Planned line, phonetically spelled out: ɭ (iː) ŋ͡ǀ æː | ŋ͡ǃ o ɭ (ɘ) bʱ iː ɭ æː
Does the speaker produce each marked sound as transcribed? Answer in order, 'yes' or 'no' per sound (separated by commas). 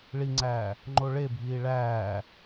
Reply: no, no